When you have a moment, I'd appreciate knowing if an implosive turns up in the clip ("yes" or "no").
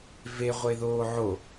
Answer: no